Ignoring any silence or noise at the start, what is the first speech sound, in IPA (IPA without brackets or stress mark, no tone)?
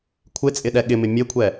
kʷʰ